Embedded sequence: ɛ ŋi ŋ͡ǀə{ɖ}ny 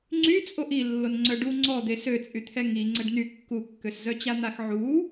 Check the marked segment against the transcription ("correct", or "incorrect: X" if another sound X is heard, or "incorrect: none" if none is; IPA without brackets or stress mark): correct